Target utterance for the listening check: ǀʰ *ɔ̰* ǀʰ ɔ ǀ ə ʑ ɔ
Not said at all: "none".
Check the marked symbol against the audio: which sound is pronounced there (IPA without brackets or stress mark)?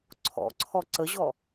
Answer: ɔ̰